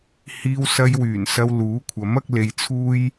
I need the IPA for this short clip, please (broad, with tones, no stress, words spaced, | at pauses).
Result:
hiː˧wsɐ˧jwyː˨˩nsɐ˧w luː˨˥kʷʰɐ˨˥m ɐ˥k̚le˧jt͡sʰuː˥j